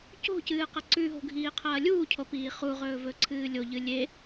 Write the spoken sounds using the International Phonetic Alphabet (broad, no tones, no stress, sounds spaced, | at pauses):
c o̤ c ɨː q ɐ ǀ ʉ ɦ o̤ ɡʱ iː qʰ ɐː lʲ uː cʰ o p iː χ u ʁ ɵː v ɵ ǀʰ ɨː lʲ o ʎ ɨ lʲ e